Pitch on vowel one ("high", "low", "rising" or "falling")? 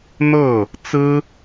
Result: falling